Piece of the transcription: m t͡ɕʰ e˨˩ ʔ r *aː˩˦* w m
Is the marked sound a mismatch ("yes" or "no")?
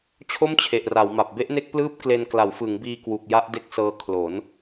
yes